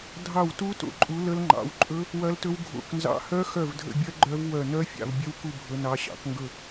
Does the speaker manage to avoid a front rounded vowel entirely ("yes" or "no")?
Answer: no